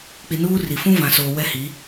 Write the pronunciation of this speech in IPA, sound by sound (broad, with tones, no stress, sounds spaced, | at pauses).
k͡p i˨ n uː˦ r i˨ f ũ˦ v ã˨ s oː˨ w ɛ˦ h i˨˦